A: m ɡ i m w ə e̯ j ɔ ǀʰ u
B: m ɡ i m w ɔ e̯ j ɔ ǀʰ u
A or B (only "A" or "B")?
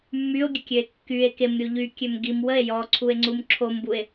A